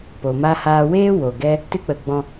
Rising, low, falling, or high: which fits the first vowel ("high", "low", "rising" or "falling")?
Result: low